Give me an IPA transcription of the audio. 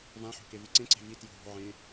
vãħo̤kevi ǀẽǀe̤ vi tjo̤ɦo̤ ʕẽ

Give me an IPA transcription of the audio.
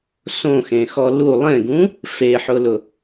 sõxẽxɔ lu lˠẽɡũ | feħʊlʊ

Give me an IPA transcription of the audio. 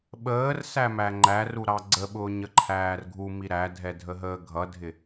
ɓəːrsæmæ ŋ͡ǃæruɾɑ ɡ͡ǀəɓʊːɲəǃʰæːr ɡʱumi ɾædʱɛdʱəɦəː ɡʱʌdʱɪ

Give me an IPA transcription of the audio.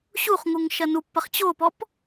ɕuχŋuŋʃɐ nupːɐχ t͡ɕopɔp

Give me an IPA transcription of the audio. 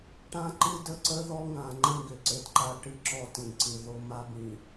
ʈã˦ǃɨ˦də˦ǀə˦ ðɔ˦ŋã˨ŋ͡ǃə̃˦ ɡʏ˨ǀɘ˦dǃa˦ ʈɨ˦ǁɔ˦tĩ˨ǀɨ˨ ðo˦ma˦bĩ˨

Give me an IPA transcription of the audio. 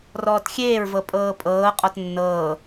rɔːtxʲeːɹvɤ pʼɤːpʼɤː qʼɔtnːɤː

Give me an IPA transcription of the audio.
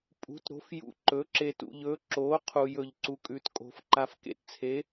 pʼṳ˨˥tɾo̤˨˥fjṵ˧ ǃɵ˨˥ǁe˧tṵ˧ʎ ɵ˨˥ ǁo˨˥ qʰu˧jɵ˧ʎ ǀu˧kʼʉ˨˥tkʼo̤˨˥f ǃa˧fkḛ˧tt͡sʰe˨˥

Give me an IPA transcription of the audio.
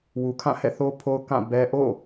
wu˨kʰã˦˨hɛ̰˦˨ θo˦ pʰo˦ʊ̯kã˦˨bɛ˦ ʔo̰˦˨

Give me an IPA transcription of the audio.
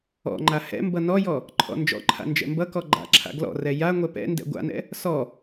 ɔ̰ŋ͡ǃa hɛ̰mbʌ nɔjɔ | ǃʰɔ̰nd͡ʒɔ̰ǃʰa̰ nd͡ʒɛ̰mbʌkɔ ɡ͡ǃa̰ǁʰa̰ ɡlɔ̰rɛ ja ŋʷɛpɛ̰ndɛ̰ ɡʷa̰nɛ̰ | sɔ

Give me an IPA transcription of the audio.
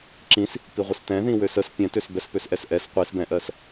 ǁĩs | piʁʷəstɛ̃ðĩ wøsəs pʲɛ̃tøs bɛspøsʔɛsʔɛs qʷisbɛ̃ʔɜs

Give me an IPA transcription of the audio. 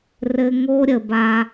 rɘ˧ŋo˦ ɾʲə˨ba˧

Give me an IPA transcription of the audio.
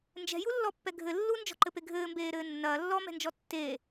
nd͡ʒɛ̤julːɔpːɛ ɡʱɘ lːund͡ʒɔ̤ǃɘpe ɡʱɘːmbeːɾɘː nːɐː lːɔmɛ̤nd͡ʒɔ tːe

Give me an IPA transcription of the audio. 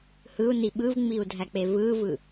hɯu̯ni ɓɯvŋ͡miu̯dʱæk͡pe vɯvɯ

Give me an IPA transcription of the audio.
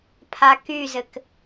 pʰakyzɘk

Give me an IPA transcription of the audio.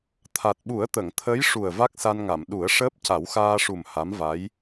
t̪ʰa˨˩t̚ɓu˨˩˦ə̯t̪ə˨˩˨ŋ t̪ʰə˧˥jʂu˨˩ə̯ va˦˥k̚sa˧nŋa˨˩˨m ɗu˨˩˦ə̯ʂəː˦˥p̚ca˨˩˦w xaː˧ʂu˨˩m ha˧˥mva˧˥j

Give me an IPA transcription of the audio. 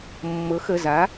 mːɤ˨˥xə˩˧˩za˨˥

